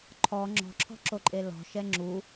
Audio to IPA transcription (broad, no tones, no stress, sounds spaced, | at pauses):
ǃʰ ɔ ŋ͡ǁ ɔ̤ ǁʰ ɔ̤ ǁ o ǃʼ e l ɔ̤ ʃ ɛ ŋ͡ǁ u